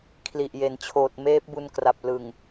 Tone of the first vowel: low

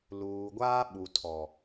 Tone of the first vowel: low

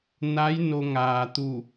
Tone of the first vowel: rising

